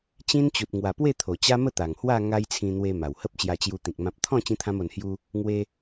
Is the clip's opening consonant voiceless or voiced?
voiceless